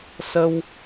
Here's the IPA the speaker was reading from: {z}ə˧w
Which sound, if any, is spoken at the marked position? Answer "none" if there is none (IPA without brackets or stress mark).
s